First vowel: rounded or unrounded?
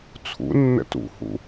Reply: rounded